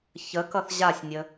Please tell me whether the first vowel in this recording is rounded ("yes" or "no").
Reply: no